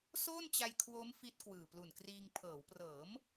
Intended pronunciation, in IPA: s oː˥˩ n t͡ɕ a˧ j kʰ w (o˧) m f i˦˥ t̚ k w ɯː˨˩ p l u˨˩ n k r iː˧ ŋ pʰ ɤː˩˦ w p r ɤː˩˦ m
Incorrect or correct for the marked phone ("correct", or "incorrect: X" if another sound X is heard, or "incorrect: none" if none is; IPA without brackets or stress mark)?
incorrect: o˦˥